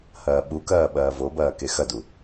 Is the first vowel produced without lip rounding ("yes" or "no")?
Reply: yes